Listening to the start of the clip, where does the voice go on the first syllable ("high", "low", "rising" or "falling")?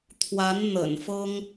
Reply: rising